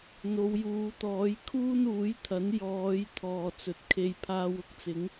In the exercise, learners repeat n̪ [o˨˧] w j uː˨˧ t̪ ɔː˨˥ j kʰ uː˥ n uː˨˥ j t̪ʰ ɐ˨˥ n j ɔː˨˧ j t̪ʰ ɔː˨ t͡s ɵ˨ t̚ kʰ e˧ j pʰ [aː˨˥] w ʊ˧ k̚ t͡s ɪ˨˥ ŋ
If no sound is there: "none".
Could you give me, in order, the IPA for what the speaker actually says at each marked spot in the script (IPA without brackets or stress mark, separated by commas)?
o˨˧, aː˧